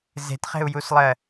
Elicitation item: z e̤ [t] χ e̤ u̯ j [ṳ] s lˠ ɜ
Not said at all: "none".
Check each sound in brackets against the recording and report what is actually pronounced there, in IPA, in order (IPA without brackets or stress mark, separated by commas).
t, u